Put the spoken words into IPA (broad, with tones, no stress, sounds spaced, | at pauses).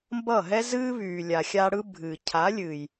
m b ʌ˦˨ ɦ ɛ˦ z ɨː˦ β yː˨ lʲ a˨ xʲ a˧ ɽ ɯ˦ bʱ ɨː˨ cʰ a˨˦ lʲ ɨː˨ j